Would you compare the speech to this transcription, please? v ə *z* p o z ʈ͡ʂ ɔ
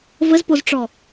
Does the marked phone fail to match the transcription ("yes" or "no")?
no